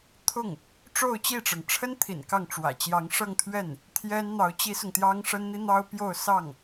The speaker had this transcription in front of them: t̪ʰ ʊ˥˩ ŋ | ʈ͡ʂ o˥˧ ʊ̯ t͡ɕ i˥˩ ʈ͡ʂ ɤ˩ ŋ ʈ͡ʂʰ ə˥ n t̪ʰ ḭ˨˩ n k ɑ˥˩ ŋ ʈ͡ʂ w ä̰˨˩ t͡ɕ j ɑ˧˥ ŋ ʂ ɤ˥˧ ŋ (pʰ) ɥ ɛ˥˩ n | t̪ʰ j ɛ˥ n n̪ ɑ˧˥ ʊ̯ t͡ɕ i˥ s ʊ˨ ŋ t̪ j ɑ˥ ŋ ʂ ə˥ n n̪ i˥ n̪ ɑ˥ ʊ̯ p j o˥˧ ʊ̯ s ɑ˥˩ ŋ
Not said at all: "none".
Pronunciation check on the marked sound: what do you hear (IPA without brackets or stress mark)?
t̪ʰ